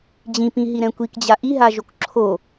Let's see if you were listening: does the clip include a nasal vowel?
yes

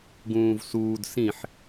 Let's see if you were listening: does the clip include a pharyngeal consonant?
yes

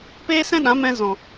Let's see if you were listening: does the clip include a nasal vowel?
yes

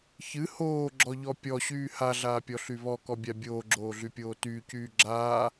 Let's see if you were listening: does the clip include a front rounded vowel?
yes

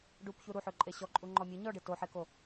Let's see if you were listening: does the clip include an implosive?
no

